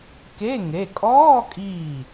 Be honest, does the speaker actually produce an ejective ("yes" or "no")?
yes